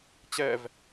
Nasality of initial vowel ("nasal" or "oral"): oral